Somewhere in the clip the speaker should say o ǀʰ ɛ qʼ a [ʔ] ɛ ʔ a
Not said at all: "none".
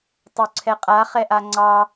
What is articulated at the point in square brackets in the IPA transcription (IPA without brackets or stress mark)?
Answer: χ